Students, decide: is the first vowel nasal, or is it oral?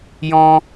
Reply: nasal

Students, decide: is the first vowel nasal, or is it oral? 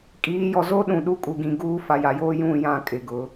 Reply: oral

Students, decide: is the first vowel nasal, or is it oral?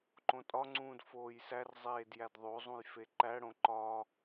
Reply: nasal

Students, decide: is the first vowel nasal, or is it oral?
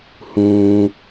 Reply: nasal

